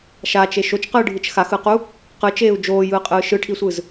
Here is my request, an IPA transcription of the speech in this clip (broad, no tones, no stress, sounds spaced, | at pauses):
ʃ a t͡ʃ e ʃ o t͡ʃ q ɯː ɖʱ ɯ t͡ʃ x a x ɯ q u | q ɯ t͡ʃ eː u̯ d͡ʒ oː j ɯː qʼ ɯː ʃ ɯ ʈʰ i sʷ ɯ z